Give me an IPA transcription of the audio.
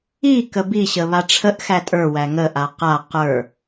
i k ə b i ɕ ə β a ʈ͡ʂʰ ə ʔ x æ tʼ ə˞ w æ ŋ ə ʔ a q a q ə˞

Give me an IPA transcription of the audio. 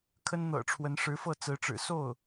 kʰ ə˥ n n̪ ɤ̰˨˩ ʈ͡ʂʰ w ə˧˥ n ʂ ɻ̩˧˥ f ɤ˥˩ t͡s ɹ̩˧˥ ʈ͡ʂ ɻ̩˨˩ s o˥˩ ʊ̯

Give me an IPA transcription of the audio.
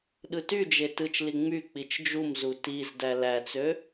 ɗ ɯ t y d͡ʒ e t ɯ t͡ʃ l i ŋ͡m y k͡p i t͡ʃ d͡ʒ u m z u t i z d æ l æ t͡s ø

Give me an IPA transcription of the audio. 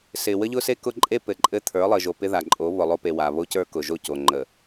s ɪ˨ w ə˦ ʎ ʊ˦ s e˦ k ʊ˦ ǃʼ e˦ p ɘ˨ ǃʼ ɘ˦ t̪ʰ ə˞˨˦ lˠ ɘ˨ ʒ o˨ p ɪ˦ ð a˨ ǃʼ o˨˦ β ʊ˨ lˠ o˦ p e˨ w a˨ β o˦ c ə˞˦ k ʊ˨ ʒ o˦˨ c o˨ ŋ͡ǃ ə˨

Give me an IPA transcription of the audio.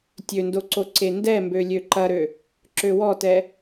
tʲ ø n d o ǀ o ǀ e n d ɛ m b ø lʲ ø ǃ ɐ ɾ ø | ǁ ø w ɔ t ɛ

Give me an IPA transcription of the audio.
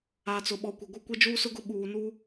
a˨ t͡s ʊ˨ ɓ ɔ˨ kʷ ɪ˨ ɡʷ ɪ˦ kʷ e˦ d͡ʒ uː˦ s ʊ˦ ɡ ʊ˦ ɓ uː˨ n uː˦

